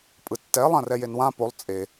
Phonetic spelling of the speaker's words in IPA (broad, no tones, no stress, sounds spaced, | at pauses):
pʼ ɯ tː ɛ lˠ ã r ɛ j e n w ã p o lˠ t͡sʼ e